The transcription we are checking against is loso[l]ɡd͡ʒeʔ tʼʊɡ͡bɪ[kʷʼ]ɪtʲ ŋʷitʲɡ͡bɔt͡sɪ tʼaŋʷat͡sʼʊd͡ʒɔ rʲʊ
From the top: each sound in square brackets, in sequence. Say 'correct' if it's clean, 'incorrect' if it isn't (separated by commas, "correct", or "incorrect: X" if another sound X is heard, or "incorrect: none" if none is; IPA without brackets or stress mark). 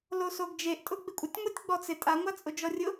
incorrect: none, correct